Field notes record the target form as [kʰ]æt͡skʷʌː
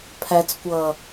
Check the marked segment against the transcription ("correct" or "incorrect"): incorrect